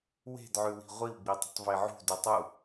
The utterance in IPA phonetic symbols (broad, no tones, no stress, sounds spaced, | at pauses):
w e̤ d ʕ ʉ w i̤ ʁʷ i w ɡ͡b i tˤ ə̤ tˤ v e ʕ ṳ d u tˤ u